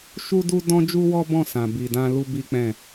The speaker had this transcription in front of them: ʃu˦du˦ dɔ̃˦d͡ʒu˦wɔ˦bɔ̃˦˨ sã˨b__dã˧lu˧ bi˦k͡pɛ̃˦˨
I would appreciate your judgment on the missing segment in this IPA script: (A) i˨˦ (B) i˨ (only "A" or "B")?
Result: B